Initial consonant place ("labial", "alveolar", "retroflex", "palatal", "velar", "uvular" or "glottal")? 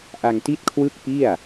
glottal